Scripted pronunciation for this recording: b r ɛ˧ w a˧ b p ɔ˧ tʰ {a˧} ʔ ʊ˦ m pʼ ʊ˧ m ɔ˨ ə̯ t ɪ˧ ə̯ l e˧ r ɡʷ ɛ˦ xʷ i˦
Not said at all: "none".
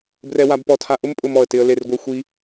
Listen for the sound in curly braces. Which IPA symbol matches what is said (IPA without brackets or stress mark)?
a˧